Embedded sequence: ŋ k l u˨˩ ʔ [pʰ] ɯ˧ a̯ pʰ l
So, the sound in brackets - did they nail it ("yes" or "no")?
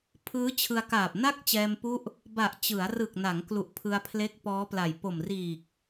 yes